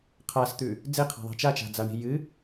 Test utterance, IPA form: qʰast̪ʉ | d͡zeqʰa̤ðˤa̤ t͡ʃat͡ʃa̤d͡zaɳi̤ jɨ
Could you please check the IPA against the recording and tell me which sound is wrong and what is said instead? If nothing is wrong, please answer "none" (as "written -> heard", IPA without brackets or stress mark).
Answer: none